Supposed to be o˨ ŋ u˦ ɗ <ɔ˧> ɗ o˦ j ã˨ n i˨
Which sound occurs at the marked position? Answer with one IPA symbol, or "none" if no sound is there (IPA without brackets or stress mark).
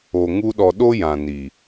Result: ɔ˧